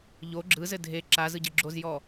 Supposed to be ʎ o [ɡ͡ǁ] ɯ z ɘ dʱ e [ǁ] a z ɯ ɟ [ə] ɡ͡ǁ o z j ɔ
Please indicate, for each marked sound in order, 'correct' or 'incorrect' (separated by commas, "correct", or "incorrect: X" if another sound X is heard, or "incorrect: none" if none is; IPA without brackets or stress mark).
correct, correct, correct